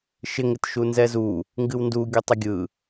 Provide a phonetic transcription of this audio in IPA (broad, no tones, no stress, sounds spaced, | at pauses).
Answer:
ʃ ɪ ŋ ɪ t ʃ u n z ɛ z u | ŋ ɡ ɨ w n d u ɡʲ u tˤ ɪ ɡʲ ɯ